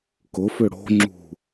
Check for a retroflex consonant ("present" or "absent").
present